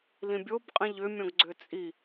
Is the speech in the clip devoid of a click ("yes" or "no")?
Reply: no